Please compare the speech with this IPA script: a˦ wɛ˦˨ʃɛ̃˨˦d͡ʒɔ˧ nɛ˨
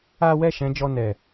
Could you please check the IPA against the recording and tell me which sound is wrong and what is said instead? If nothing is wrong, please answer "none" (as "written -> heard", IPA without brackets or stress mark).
none